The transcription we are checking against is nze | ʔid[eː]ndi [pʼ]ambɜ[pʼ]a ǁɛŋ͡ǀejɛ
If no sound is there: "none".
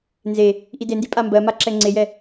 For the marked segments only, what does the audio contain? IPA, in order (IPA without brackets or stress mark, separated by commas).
e, pʼ, m